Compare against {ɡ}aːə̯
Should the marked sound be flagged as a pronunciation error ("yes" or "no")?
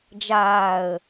yes